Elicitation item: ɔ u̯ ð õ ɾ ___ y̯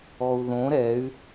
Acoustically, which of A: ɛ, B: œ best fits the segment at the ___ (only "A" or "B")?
A